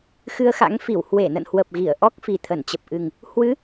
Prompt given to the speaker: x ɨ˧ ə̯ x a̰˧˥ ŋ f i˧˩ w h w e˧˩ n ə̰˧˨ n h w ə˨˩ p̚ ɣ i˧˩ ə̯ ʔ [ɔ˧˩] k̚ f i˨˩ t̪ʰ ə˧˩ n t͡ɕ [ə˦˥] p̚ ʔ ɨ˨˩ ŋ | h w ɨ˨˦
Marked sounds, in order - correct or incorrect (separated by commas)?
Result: incorrect, incorrect